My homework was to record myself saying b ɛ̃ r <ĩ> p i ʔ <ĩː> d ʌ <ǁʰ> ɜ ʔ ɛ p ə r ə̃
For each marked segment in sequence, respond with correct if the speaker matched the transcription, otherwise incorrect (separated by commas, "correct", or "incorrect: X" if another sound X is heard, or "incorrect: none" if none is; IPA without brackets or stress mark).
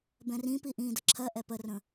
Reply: correct, correct, correct